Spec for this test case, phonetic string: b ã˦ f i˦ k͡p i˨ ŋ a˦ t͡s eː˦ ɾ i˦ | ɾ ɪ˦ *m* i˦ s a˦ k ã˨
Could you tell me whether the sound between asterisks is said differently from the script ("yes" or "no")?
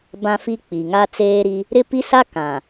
yes